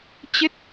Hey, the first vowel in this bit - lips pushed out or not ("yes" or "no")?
no